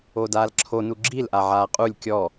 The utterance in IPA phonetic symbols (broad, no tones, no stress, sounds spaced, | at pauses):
oː d aː l ǁʰ o n u ɡ͡ǁ i l ʔ a ʕ aː qʼ u lʲ kʲ ɔ